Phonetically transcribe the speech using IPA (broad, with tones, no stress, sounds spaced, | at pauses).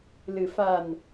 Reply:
l ɨ˨˩ f a˨˩ n